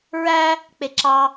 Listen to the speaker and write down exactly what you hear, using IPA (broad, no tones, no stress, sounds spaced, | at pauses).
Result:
ɹ æ | k͡p e ǁ ɑ